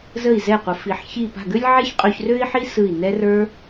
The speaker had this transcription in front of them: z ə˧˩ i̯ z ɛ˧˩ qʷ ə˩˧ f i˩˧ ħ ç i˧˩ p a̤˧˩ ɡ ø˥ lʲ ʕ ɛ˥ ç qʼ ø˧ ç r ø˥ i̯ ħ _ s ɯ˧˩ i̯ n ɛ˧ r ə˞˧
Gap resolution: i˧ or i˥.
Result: i˥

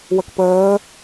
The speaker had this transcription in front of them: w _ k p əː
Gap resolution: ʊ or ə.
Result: ə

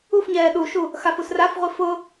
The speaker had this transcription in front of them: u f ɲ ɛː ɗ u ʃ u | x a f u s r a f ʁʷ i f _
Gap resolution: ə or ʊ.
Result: ʊ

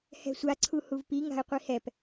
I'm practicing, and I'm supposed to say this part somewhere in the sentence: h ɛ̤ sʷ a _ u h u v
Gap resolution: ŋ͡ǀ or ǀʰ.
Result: ǀʰ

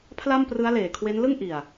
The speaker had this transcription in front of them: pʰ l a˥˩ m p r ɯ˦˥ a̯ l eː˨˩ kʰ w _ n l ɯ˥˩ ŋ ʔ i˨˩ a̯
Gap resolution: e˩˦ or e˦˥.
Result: e˦˥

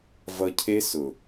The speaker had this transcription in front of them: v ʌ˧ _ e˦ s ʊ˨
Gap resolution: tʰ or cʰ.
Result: cʰ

